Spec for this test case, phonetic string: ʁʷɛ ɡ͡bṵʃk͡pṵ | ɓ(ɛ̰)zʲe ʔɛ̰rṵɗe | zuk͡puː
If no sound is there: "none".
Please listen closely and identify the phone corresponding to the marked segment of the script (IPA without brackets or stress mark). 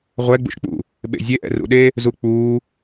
ḛ